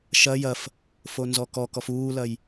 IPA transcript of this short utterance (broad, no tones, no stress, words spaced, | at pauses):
ʃɐ jɐf | fonzɔkɔkɔf uːlɐj